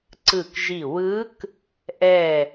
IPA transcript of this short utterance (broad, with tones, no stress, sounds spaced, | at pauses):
ǀ ɯ˧˩ k ʒ i˧˩ w ɯ˧˥ k | ʔ ɛ˧˩